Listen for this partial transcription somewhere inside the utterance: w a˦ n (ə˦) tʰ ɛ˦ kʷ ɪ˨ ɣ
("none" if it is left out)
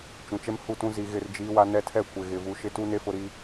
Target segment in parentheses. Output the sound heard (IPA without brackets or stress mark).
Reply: ɛ˦